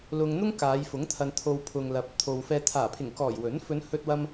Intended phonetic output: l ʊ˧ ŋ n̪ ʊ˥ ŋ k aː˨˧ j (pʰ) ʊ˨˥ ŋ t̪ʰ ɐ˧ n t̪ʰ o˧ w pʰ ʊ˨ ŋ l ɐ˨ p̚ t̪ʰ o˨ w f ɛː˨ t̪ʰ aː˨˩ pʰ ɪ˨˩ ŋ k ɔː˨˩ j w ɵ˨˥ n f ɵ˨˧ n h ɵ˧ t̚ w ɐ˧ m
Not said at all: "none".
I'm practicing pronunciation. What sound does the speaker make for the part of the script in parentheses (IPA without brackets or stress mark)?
f